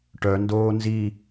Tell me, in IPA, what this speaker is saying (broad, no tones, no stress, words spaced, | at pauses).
ʈœndoː nzi